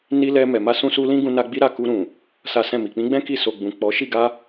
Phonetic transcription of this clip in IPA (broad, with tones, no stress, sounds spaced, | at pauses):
n i˦ l ɛ˧ m ɛ˨ m a˧ s ũ˧ s u˧ l ĩ˦ ɡ ũ˧ n a˧ ɡ͡b i˦ ɾ a˦˨ k u˧ ɾ ũ˨ | s a˦ s ɛ̃˦˨ m i˨ k͡p ĩ˨˦ ɡ͡b ɛ̃˦ k i˦˨ s o˨ ɡ͡b ũ˨ k͡p ɔ˨˦ ʃ i˦˨ ɡ a˧